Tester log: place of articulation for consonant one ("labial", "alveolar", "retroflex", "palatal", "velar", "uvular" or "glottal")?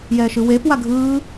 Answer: palatal